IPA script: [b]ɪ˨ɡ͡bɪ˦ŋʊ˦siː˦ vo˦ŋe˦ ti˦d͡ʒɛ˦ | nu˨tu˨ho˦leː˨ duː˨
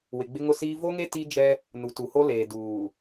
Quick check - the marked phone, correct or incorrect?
incorrect